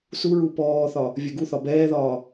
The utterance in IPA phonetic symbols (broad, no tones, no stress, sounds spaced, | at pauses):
s u ɹ u p ɔː θ ɒ | vʲ ɛ ɡ u θ ɒ b ɛː ð ɒː